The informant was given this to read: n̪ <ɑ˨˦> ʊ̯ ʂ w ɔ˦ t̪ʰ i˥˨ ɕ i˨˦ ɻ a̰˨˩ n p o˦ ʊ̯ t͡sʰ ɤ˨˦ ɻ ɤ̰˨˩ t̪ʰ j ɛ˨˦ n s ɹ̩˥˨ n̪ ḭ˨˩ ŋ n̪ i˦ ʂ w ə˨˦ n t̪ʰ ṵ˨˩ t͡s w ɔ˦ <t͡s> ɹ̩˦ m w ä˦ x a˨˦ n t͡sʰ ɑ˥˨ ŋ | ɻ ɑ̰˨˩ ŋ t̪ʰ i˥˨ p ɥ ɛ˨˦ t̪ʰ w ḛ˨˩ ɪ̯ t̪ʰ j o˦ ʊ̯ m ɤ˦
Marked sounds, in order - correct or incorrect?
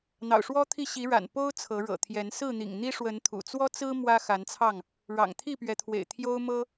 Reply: incorrect, correct

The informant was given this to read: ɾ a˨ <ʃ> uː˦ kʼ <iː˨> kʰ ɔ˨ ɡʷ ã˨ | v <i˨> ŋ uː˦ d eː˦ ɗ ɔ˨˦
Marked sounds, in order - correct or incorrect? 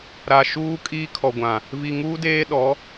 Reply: correct, incorrect, correct

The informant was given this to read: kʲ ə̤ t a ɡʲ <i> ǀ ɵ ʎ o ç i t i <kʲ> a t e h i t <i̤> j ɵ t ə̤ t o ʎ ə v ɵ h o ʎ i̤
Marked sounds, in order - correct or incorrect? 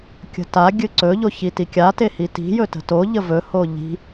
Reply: incorrect, correct, correct

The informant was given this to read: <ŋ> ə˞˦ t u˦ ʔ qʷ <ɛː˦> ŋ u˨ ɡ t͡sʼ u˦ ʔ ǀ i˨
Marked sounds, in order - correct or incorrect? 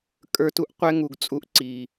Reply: incorrect, incorrect

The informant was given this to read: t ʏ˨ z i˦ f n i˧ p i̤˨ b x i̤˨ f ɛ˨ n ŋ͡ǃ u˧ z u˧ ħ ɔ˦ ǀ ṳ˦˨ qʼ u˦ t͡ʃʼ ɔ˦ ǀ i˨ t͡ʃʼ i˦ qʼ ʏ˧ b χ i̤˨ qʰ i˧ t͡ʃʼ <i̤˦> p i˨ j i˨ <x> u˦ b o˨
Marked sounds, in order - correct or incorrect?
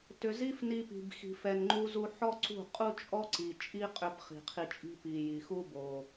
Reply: correct, correct

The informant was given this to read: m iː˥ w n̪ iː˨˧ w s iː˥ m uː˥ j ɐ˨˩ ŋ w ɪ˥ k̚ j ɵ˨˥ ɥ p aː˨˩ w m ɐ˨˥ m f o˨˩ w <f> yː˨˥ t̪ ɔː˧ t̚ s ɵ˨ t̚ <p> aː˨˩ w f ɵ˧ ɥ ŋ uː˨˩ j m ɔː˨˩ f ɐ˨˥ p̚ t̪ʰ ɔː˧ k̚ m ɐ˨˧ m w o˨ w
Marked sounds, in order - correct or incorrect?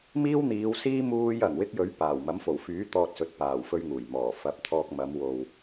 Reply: correct, correct

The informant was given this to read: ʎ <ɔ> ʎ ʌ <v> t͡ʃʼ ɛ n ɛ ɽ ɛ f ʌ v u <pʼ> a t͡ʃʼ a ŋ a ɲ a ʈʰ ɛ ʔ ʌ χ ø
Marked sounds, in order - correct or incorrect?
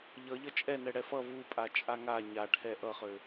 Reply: incorrect, incorrect, correct

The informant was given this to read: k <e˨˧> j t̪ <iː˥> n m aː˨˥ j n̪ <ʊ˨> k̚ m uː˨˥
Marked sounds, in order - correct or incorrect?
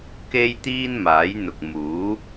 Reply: incorrect, correct, correct

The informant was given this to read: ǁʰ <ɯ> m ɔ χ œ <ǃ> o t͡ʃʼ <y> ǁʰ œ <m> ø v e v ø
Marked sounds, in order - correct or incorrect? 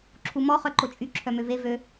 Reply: incorrect, correct, correct, correct

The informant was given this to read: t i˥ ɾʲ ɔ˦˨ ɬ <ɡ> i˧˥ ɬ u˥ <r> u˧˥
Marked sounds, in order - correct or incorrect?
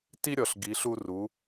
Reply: correct, correct

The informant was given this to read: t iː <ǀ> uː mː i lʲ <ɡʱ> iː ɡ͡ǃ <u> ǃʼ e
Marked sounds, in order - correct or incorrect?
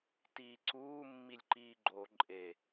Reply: correct, incorrect, incorrect

